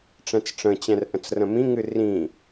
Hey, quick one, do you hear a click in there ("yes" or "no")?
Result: no